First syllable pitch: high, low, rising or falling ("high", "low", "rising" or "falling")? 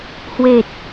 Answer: low